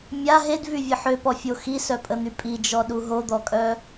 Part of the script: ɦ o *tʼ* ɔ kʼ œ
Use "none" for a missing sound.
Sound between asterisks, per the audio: d̪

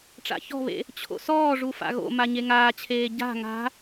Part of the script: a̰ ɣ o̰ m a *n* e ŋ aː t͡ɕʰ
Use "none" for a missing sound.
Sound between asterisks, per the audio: ɲ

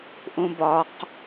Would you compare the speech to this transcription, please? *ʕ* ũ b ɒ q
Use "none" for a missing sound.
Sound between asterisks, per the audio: ʔ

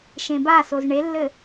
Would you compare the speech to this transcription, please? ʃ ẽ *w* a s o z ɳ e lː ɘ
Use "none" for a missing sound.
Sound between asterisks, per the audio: b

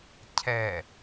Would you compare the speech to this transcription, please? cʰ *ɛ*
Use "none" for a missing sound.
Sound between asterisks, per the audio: ɛ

